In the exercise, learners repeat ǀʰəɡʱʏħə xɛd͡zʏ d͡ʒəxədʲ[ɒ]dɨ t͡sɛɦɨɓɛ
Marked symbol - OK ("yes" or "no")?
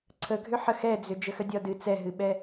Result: yes